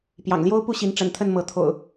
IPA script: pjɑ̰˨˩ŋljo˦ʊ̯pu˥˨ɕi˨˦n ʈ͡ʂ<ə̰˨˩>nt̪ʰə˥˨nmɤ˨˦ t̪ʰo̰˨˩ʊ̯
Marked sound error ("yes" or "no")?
no